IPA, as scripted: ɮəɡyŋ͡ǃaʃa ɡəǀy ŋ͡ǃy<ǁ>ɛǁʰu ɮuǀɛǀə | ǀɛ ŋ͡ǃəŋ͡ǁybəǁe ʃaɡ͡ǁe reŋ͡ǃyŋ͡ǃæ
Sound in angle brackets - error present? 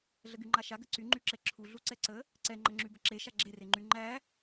no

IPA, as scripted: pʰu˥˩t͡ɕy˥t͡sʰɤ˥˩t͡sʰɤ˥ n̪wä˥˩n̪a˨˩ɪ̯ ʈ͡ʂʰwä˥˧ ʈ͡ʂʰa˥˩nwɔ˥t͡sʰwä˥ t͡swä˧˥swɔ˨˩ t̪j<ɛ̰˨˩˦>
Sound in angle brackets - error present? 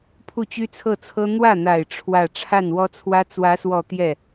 yes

